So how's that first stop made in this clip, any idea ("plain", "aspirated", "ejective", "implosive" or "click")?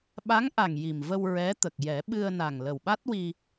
implosive